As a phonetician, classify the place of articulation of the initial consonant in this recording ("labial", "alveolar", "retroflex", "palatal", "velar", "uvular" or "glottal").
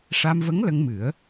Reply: retroflex